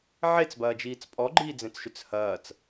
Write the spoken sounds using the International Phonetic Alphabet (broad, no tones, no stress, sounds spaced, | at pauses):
ʕ e t͡s b ɐː d͡ʒ iː t͡s pʼ ɔ ɡ͡ǃ iː d͡z ẽ t͡s ʃ ʏ t͡s h ɐː t͡s